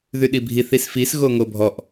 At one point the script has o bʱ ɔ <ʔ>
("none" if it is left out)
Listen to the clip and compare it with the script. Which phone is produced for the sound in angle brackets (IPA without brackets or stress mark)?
ʔ